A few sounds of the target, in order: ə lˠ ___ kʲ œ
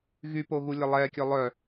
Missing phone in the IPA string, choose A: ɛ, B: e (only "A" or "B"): A